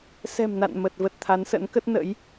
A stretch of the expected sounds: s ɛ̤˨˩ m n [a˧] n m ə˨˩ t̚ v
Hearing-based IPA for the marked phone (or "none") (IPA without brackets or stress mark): a̰˧˨